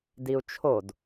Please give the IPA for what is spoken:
d i u̯ t͡ʃʰ o d

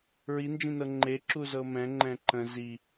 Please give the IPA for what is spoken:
ɹ i n d͡ʒ ĩ n ɤ ŋ͡ǃ e ǁ u z ɤ m ɛ̃ ŋ͡ǃ ɛ̃ ǃ ə̃ z i

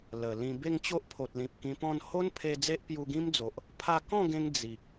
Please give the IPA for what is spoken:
l ə˨˩ l ĩ˧ b e˥˧ ŋ t͡ɕ o˦ ʔ pʰ o˨ t̚ l ĩ˨ p̚ k ĩ˧ p ɔ̃˥˧ n h o˦ n pʰ e˧ d͡z e˦ ʔ p j u˧ ɡ ĩ˦ m d͡z o˨ ʔ | pʰ a˧ k ɔ̃˥˧ ɡ ẽ˧ ŋ d͡z i˨ k̚

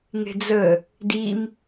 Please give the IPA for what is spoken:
ŋ e̤ d͡z ə | d i m

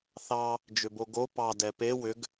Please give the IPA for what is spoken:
θ ɑ | d͡ʒ ʏ b o ɡ o p ɑ d ɛ p e w ʏ ɡ

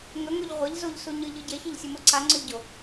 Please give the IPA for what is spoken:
ŋ ɵ ŋ o ʎ ʁʷ e ʎ z o ʎ s u ɲ ɨ ʎ ɨ ɟ e ç e ʎ sʲ ɨ m o ǀ a ŋ͡ǀ ɵ ʎ ɟ o

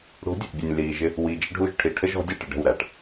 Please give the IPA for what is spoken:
ɽ ṳ˨˦ dʲ ə˨ ʔ bʲ ə˨ nʲ l iː˨ ʒ ɪ˦ | w i˨ d͡ʒ ə˦ ɖʱ u˦˨ ʒ ʈʰ i˨ ʈʰ ə˦ ʒ ɔ̤˨˦ dʲ ɑ˦˨ ʈ ɪ˨ ɖ ə̤˦˨ w ɾ æ˨ ʈ

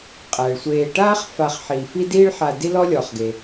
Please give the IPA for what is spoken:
qʼ æ˩ ɭ sʷ eː˨ ʈ aː˥ χ f a˨ χ ħ iː˩ f i˦ d iː˥ ɭ ħ a˨ d i˦ l ɔ˦ lʲ ɔː˩ χ ɡ e˩

